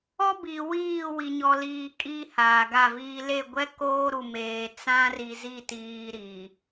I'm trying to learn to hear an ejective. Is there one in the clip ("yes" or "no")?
yes